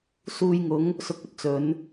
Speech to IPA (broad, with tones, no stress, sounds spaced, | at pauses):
s uː˧ j ŋ ʊ˨˥ ŋ | s ʊ˧ k̚ ɵ˧ t̚ t͡s ɵ˨˧ n